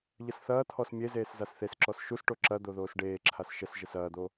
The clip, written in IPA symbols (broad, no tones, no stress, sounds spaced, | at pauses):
ʎ ə s θ ɐː t̪ʰ ɔ s mʲ e z eː s z a s θ e s ǁ ɔ s ʃ u s ʈ o ǁ ɐ d̪ o ð oː s ɖ eː ǁʰ a s ʃ ə s ʒ ə s ɐː d̪ o